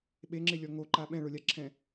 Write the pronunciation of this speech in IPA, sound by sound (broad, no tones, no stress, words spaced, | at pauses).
ɓeŋ͡ǁelʲɔ ŋoǃa ɓɛ̃ɭolʲaǁʰɛ̃